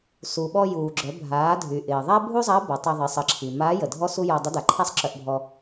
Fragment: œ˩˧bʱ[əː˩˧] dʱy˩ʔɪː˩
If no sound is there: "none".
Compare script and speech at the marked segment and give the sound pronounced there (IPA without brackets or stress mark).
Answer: aː˩˧